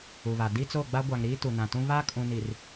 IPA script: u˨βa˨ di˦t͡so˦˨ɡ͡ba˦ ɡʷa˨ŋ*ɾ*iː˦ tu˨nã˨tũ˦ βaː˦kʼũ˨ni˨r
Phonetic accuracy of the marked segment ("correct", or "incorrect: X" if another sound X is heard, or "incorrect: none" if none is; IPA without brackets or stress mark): correct